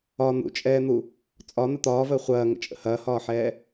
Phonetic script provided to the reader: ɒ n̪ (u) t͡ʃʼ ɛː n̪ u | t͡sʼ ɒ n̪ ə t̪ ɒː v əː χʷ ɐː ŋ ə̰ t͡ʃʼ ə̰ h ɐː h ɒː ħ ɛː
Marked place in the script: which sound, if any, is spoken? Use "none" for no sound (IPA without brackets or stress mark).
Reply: ṵ